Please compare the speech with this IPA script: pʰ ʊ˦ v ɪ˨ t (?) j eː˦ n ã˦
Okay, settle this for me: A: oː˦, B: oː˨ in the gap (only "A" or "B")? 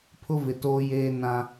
A